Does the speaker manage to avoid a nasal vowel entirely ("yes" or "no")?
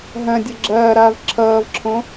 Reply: no